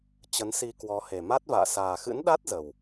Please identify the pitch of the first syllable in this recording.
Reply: rising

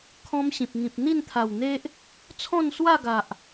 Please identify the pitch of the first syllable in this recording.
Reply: high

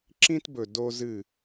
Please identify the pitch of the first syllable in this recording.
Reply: high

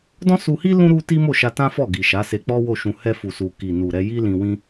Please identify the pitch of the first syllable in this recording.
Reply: high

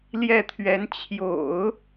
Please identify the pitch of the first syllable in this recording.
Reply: falling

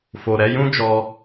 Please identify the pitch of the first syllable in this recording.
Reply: low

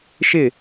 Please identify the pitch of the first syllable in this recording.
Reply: falling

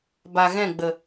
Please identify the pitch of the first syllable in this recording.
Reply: low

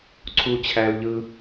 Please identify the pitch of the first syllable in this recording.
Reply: high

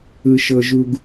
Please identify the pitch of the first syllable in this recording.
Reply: low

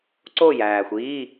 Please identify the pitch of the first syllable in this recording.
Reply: falling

